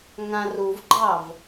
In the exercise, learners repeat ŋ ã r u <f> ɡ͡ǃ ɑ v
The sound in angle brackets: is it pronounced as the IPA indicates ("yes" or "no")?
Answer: no